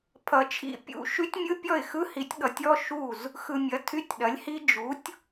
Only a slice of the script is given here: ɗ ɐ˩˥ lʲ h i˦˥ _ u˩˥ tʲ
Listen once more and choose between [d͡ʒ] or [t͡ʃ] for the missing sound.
d͡ʒ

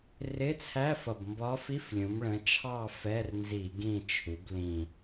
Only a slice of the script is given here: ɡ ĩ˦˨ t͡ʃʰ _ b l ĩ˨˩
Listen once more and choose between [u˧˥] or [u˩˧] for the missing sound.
u˩˧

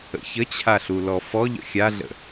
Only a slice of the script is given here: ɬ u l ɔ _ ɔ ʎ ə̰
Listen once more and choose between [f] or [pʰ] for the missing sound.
f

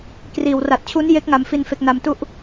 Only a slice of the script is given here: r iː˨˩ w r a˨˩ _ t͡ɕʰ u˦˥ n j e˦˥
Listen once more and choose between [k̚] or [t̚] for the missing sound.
t̚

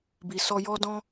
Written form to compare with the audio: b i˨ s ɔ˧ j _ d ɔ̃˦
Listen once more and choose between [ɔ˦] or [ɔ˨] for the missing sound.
ɔ˦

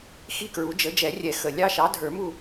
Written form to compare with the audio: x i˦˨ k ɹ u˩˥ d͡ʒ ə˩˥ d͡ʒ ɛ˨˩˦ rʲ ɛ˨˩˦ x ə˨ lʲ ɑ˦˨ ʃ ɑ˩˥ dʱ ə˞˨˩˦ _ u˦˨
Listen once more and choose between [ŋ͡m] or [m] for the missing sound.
m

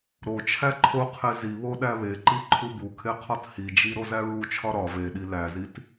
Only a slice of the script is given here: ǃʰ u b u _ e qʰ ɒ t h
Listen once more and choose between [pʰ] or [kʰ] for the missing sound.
kʰ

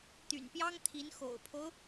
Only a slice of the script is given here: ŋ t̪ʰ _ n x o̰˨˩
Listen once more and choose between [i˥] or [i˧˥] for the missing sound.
i˧˥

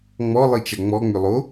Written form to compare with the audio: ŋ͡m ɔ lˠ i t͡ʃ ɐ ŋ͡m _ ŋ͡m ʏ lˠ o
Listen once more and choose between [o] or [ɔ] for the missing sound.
ɔ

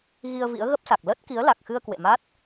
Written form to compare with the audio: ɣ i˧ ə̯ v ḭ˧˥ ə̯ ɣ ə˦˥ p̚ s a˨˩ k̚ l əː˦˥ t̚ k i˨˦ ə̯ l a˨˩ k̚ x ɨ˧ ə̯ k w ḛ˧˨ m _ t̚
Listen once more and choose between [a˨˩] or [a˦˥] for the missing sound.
a˦˥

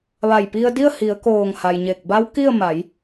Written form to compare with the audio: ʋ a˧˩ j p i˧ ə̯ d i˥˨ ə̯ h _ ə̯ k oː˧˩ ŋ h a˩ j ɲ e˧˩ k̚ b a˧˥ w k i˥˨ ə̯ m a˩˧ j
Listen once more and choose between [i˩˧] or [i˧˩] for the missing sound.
i˩˧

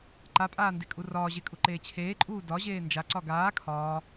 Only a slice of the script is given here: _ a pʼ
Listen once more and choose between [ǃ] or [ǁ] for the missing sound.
ǃ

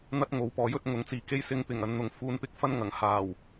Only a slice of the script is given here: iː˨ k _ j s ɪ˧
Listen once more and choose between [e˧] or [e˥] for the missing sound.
e˥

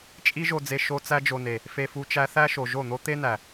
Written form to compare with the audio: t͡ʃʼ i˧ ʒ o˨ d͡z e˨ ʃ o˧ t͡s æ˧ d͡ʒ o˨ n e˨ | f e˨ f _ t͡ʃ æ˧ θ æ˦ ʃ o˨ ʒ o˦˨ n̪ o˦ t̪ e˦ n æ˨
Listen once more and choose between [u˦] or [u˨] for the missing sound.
u˨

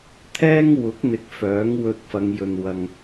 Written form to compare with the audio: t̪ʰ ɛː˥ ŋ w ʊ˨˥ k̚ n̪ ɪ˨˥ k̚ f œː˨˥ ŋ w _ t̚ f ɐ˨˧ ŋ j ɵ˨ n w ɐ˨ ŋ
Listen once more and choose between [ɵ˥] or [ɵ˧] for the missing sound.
ɵ˧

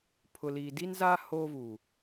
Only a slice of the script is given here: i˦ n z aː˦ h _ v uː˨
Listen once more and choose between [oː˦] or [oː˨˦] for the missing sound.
oː˦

